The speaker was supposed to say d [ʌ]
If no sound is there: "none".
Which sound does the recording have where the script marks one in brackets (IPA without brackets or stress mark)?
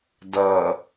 ʌ